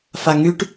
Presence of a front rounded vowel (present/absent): present